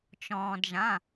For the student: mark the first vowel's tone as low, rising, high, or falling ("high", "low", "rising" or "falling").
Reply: low